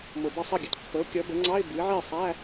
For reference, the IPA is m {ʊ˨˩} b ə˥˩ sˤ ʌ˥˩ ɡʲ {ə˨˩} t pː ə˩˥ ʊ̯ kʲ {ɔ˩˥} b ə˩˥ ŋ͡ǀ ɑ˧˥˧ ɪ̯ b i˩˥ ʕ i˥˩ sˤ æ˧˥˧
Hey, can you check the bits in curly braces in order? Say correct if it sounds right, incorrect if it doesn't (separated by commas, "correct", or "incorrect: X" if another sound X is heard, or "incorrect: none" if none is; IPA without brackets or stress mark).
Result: correct, correct, incorrect: ʌ˩˥